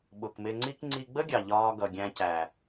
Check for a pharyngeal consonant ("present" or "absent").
absent